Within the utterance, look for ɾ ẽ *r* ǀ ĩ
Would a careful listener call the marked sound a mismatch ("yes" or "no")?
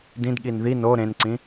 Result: yes